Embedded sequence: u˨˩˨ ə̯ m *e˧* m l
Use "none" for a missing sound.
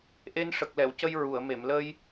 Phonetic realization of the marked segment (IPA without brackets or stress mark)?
e˨˩˨